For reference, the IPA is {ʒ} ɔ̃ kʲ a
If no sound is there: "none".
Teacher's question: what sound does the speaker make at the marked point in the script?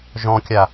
ʒ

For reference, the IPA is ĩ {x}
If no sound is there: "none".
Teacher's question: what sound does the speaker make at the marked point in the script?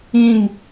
ŋ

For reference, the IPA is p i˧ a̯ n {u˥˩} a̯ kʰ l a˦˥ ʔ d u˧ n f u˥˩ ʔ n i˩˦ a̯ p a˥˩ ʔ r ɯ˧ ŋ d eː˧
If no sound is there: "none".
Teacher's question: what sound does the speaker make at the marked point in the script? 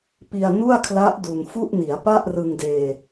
u˥˩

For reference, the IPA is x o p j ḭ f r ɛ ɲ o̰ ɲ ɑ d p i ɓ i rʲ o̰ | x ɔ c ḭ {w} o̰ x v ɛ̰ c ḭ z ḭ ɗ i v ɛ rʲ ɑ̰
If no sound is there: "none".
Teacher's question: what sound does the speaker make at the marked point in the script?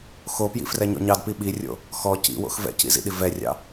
w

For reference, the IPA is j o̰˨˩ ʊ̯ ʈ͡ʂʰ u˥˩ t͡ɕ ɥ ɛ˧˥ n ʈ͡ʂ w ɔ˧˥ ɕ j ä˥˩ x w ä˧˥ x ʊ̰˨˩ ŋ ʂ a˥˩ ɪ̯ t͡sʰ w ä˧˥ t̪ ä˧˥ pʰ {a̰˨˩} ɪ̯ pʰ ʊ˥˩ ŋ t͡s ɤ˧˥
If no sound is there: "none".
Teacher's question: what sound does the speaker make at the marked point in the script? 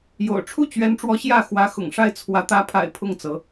a̰˨˩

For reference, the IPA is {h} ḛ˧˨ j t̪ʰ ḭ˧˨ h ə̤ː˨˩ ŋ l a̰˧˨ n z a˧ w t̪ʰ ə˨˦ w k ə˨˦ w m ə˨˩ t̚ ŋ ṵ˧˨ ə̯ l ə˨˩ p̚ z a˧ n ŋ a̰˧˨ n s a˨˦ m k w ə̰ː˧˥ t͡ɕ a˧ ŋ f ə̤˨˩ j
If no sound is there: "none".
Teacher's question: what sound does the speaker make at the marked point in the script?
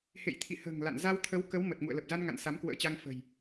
h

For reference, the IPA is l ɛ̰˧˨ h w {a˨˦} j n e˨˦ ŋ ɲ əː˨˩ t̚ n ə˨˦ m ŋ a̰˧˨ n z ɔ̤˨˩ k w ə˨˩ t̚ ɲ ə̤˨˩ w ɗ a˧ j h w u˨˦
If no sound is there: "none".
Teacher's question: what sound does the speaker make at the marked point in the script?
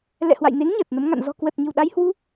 a̰˧˨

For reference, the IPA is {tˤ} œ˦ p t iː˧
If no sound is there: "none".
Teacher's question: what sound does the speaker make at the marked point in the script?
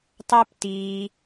tˤ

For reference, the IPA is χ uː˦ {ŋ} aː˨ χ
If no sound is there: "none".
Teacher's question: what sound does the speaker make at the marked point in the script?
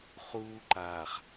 ǃ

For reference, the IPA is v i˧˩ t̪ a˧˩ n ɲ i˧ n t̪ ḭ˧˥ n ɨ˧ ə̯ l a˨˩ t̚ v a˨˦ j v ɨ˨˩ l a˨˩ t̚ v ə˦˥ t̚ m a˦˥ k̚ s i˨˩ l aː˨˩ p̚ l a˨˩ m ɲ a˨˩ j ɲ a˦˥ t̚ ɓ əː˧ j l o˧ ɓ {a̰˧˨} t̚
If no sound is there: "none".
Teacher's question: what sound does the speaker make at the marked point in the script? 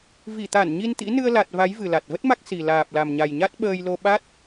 a˦˥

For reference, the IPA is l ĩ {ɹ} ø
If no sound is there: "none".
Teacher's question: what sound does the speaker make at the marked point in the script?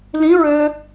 ɹ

